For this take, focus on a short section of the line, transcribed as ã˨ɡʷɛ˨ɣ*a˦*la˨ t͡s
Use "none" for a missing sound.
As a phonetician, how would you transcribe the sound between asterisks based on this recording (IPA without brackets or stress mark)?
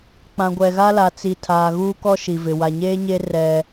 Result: a˦